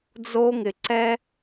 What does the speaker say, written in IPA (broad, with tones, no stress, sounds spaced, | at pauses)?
d͡z o˥ ŋ ɪ˧ ǀ ɛ˥